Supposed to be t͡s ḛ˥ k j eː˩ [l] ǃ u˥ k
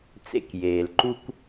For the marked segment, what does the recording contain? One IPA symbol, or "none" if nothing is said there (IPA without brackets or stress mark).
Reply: l